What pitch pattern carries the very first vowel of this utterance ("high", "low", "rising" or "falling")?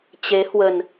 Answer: rising